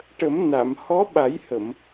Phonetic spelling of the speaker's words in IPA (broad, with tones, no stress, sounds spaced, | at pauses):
ʈ ə˨˩˦ m n a˨˩˨ m h ɔ˧˥ ɓ a˨˩˦ j h ə˨˩˨ m